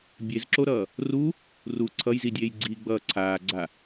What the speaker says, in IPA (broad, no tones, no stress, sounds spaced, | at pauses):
bʲ e z ǁ o ɾ ʌː | r u | r u ǀʰ ʌ j z i dʲ eː j ɡ͡ǀ iː ɡ͡b ʌː ǀʰ aː ɡ͡ǀ a